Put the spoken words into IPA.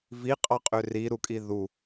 v i qʼ ɑ qʼ ø r i ɾ u kʼ i ð u

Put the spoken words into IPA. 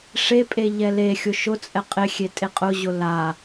ʂ e pʼ e ʎ ɛ l e xʲ ʊ ʃ ʊ t͡sʼ ɛ qʼ ɪ xʲ e tʼ e qʼ ʊ ʑ ʊ l a

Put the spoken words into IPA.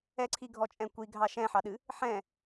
ɛ ǀʰ i ɡʱ ɔ t͡ʃʼ ɛ̃ kʷ i ɡʱ ɑ ʃ ɛ̃ ħ ɑ ɗ ɨ | ħ ɛ̃

